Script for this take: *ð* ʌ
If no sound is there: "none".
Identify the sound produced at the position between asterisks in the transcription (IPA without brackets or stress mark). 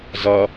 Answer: z